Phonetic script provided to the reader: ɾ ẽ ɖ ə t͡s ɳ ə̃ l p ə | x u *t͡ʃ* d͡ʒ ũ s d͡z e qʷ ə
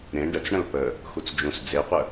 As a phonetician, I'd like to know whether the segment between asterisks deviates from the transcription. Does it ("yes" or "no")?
yes